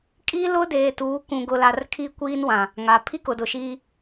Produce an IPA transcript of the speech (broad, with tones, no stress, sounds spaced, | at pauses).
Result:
kʼ iː˦ l ʊ˦ d eː˨ t uː˨˦ k ũ˨ ɡ ʊ˨ l a˨ r kʰ i˦ kʷ iː˦ n w ã˨ | ŋ a˨ pʰ i˦ k ʊ˨ d ʊ˨ ʃ iː˦